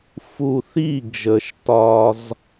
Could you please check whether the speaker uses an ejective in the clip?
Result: no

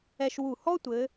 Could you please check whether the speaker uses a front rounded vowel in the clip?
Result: no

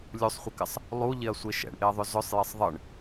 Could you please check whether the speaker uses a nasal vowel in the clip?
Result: no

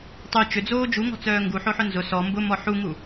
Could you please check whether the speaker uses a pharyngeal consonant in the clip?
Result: yes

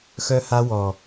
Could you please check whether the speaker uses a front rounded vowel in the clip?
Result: yes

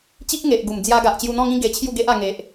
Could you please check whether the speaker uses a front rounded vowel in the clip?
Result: no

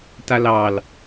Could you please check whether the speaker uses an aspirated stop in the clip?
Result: no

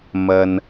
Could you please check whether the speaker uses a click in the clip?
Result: no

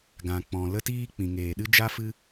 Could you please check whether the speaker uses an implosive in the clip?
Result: yes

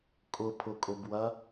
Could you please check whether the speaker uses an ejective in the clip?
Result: yes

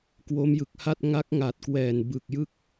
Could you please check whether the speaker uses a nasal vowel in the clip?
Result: no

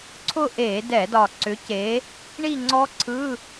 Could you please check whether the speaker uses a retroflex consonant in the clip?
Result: yes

